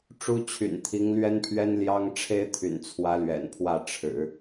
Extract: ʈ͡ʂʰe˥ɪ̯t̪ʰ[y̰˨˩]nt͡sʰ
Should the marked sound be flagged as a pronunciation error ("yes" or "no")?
no